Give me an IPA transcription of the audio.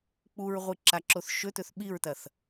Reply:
k͡p u ɹ ʁʷ ɨ ǁ a ǁ o θ ʃ ɵ t̪ ɵ θ ɓ i ɹ t̪ ɐ θ

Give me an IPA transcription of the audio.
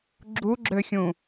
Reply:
ɡ͡ǁ u ɡ͡ǁ ø xʲ ũ

